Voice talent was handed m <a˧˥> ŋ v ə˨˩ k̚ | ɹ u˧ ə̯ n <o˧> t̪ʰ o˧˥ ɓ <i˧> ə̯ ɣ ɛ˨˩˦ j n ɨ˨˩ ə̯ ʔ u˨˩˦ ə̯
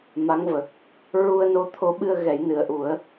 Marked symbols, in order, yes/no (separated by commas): yes, yes, no